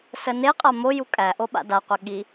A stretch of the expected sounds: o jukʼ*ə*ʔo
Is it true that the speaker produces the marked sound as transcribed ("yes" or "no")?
no